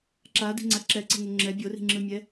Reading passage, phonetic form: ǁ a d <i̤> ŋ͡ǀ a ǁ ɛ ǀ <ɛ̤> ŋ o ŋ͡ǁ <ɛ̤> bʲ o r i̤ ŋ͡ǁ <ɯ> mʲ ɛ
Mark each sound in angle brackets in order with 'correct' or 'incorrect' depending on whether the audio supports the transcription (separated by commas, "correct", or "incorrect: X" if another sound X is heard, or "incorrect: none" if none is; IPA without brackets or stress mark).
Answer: correct, correct, incorrect: ɛ, correct